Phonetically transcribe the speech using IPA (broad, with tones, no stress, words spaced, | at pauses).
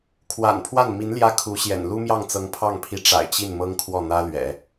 kʰwa̰˨˩npʰwa˥˩n mi˧˥n ljä˥kʰu˧˥ɕjɛ̰˨˩n lu˥mjɑ˥˩ŋ t͡sɤ˧˥ŋpʰɑ˥˩ŋpʰi˧˥ ʈ͡ʂa̰˨˩ɪ̯t͡ɕi˥˩n mɤ˥ŋ kʰwɔ˥˩n̪ä˥lɥɛ̰˨˩˦